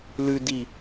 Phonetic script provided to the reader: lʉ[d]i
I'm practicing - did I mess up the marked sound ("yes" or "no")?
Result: no